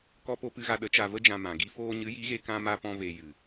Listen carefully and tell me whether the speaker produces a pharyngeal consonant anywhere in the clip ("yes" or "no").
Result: no